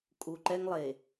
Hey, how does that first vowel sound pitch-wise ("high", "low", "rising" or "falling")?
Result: low